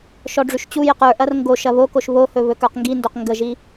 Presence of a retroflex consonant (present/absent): present